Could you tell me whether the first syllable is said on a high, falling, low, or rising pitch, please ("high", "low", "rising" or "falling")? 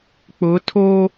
rising